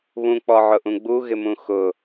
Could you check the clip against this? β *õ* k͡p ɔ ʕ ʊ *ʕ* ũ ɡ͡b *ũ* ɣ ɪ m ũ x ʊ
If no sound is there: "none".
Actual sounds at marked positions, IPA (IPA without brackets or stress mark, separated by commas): ũ, ʔ, u